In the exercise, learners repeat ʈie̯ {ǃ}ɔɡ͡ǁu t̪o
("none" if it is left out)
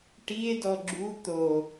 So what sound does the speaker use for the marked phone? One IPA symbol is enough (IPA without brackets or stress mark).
d